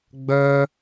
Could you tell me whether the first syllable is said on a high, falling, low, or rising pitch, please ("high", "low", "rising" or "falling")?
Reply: high